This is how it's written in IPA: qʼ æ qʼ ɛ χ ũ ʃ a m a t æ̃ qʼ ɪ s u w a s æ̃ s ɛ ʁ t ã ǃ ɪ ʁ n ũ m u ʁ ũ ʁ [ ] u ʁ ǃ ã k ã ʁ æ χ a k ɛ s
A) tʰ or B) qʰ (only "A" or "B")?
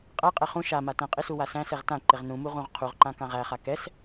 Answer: B